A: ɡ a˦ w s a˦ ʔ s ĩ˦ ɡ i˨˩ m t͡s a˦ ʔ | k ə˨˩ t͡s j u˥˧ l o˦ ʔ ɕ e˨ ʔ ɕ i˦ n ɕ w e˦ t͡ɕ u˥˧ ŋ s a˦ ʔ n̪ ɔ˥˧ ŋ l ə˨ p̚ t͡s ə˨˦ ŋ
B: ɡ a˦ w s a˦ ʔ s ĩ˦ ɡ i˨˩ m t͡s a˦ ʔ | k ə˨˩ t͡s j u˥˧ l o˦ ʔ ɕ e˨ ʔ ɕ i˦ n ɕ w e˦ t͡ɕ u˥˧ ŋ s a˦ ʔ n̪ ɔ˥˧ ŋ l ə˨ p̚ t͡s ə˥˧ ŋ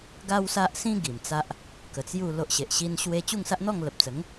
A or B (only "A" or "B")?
A